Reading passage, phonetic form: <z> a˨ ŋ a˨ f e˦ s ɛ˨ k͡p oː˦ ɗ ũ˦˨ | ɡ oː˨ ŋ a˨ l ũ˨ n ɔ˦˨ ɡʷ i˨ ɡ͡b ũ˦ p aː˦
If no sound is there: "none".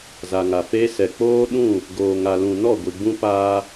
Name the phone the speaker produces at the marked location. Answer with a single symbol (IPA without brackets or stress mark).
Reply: z